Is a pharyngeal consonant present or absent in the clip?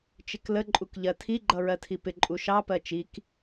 absent